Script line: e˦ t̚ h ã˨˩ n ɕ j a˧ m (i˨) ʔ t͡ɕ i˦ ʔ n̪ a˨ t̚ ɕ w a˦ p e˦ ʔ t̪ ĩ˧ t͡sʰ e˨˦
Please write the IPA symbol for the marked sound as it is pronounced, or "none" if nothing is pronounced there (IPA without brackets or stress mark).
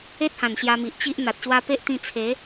i˨